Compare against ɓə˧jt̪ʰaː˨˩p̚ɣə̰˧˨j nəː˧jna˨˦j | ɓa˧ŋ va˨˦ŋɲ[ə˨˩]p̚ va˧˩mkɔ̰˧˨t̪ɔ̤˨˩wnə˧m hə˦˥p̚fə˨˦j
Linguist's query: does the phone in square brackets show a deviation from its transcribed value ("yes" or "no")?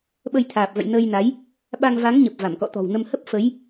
no